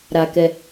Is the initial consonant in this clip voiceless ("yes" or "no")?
no